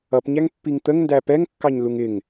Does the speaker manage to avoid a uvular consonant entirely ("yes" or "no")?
yes